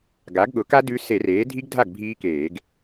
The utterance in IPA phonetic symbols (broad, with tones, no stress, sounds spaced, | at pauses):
ɡ a˩˥ ɡ ɠ ʊ˩˥ k a˦˥ d ʉ˦˥ s e˧˩˧ r eː˩˥ dʱ i˦˥ ɡ dʱ a˥˩ ɡ bʱ iː˦˥ k eː˧˩˧ ɡ